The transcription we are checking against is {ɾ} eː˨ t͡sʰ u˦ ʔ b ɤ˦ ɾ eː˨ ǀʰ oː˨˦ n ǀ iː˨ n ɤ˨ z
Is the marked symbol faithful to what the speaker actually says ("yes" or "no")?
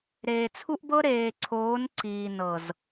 yes